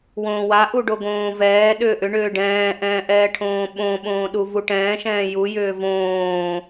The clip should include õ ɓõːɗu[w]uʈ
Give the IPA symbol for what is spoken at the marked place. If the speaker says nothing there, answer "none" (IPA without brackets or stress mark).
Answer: v